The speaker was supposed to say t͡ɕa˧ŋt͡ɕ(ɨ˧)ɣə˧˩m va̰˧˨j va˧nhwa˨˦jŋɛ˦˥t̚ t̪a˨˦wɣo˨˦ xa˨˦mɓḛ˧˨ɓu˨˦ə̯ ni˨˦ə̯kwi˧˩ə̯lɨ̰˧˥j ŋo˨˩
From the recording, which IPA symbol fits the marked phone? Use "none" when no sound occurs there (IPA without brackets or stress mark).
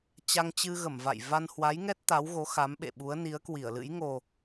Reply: ɨ˧